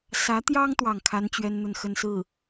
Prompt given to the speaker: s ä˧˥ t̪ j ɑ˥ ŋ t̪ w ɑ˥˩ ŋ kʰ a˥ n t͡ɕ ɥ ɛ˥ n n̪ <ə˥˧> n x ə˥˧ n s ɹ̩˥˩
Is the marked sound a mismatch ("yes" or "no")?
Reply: no